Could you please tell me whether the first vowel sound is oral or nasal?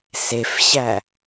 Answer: oral